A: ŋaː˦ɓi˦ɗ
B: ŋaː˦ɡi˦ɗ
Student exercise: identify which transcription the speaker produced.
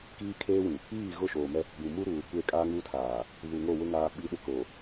A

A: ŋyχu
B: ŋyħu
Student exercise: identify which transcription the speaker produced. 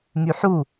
B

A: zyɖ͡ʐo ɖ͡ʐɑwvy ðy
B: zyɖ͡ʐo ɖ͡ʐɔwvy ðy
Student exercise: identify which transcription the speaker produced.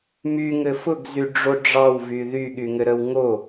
A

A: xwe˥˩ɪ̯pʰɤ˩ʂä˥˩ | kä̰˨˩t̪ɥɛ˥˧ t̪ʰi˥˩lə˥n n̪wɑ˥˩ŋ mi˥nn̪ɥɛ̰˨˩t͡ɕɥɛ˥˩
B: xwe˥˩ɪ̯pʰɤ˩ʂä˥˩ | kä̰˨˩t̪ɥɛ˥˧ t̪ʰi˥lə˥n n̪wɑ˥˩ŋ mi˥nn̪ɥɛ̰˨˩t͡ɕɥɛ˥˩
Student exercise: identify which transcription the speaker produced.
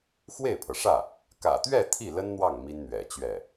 A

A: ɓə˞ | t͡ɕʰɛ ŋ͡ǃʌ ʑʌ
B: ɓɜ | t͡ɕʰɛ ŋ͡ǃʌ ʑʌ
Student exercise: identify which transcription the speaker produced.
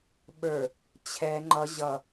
A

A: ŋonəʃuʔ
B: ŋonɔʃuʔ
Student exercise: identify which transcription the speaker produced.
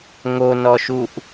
B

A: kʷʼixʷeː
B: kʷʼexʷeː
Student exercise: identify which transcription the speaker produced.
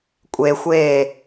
B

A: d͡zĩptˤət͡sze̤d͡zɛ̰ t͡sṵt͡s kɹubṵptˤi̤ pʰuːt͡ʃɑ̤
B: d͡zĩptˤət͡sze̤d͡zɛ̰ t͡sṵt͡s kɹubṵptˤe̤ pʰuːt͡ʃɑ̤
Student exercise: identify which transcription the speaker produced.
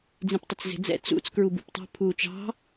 B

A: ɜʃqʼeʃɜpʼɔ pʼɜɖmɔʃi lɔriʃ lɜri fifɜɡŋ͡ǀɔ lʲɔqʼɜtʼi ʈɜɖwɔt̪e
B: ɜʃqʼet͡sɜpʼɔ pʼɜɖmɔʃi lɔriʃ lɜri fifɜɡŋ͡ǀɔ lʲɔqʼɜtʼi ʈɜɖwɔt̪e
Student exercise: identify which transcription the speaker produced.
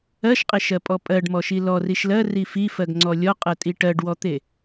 A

